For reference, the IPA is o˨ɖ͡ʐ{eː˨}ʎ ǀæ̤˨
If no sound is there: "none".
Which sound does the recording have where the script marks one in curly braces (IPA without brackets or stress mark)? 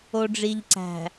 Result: iː˨